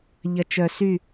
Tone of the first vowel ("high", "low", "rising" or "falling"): low